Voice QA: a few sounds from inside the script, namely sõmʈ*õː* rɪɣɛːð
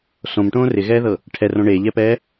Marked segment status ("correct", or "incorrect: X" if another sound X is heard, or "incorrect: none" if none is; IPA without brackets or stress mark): correct